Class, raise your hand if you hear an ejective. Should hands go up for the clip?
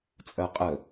yes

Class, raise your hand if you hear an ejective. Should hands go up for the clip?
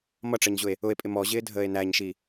yes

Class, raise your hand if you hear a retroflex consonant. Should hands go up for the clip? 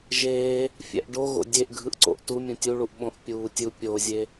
yes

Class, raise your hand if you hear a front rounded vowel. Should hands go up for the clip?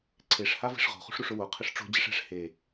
no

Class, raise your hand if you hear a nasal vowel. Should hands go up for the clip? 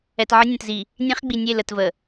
yes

